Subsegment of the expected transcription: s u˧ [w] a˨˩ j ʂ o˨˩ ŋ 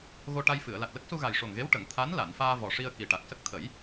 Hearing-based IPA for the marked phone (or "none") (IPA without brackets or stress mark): ɣ